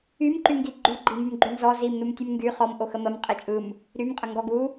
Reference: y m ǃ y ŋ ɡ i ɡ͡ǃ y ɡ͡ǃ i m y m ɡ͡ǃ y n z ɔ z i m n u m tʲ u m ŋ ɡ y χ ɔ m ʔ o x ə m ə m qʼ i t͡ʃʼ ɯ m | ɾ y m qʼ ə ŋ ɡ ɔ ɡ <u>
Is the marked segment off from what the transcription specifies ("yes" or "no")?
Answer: no